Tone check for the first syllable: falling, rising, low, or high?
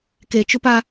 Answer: low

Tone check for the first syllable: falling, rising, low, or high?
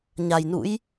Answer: low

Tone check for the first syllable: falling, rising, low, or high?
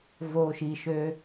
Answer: low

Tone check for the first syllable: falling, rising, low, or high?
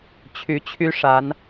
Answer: rising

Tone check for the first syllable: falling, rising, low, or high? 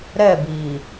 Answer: falling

